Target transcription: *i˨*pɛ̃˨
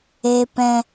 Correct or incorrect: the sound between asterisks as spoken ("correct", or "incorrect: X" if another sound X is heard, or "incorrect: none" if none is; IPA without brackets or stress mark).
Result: incorrect: e˨